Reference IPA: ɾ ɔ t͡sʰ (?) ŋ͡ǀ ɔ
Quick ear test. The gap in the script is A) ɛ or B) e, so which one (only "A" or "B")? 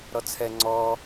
A